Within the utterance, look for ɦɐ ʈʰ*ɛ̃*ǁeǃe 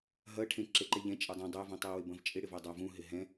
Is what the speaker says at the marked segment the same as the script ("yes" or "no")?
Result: no